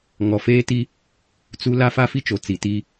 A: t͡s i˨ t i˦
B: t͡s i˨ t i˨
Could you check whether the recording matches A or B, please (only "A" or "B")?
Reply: A